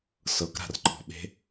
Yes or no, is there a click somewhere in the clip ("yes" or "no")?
yes